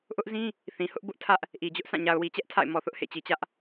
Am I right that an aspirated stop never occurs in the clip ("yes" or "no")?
no